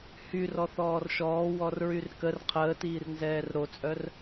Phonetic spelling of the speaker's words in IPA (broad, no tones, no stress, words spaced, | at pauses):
hyr ɔθɔːrʃɔː wɔrɹyrkər qʰəːtiːrnzɛːr ɾot͡sʼœr